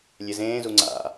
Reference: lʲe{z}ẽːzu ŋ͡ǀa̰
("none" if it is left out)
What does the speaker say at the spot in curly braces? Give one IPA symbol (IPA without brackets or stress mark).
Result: z